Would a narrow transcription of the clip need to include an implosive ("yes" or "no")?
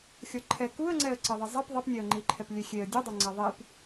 no